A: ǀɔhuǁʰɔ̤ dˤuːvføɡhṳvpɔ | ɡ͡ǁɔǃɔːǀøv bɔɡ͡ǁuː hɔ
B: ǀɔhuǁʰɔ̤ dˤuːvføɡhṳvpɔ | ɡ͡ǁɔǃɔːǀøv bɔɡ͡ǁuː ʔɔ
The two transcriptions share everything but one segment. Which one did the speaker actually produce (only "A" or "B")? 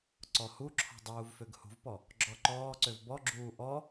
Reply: B